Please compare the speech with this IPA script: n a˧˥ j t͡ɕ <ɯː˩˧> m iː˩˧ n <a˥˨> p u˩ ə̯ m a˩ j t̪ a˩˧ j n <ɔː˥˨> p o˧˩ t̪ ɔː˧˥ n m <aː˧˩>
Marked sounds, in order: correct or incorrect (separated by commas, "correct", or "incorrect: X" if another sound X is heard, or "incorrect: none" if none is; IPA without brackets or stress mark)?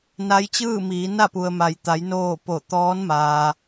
incorrect: ɯː˥˨, correct, incorrect: oː˥˨, incorrect: aː˩